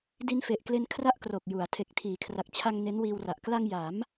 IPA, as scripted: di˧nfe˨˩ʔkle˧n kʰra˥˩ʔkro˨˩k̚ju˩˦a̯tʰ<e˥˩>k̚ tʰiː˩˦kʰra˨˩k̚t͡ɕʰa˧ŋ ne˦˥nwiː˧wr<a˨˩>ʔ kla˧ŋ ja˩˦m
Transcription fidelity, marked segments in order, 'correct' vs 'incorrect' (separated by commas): incorrect, correct